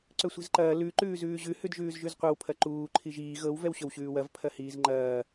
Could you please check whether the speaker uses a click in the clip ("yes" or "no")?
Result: yes